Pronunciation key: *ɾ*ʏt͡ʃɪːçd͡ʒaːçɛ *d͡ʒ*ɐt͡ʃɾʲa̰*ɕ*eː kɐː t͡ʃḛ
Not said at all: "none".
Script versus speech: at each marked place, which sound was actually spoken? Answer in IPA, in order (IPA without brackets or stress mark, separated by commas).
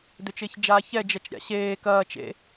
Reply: d, d͡ʒ, ɕ